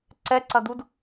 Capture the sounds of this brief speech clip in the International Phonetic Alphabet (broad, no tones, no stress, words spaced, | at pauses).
ǀɛǀɐd̪ud